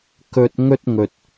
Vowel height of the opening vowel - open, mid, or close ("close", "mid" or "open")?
mid